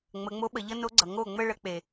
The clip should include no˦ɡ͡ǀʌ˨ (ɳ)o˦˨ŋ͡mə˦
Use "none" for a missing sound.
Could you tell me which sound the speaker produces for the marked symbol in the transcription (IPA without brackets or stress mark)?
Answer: ŋ